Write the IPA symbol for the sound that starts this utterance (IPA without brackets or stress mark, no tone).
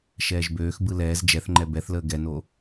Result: ʃ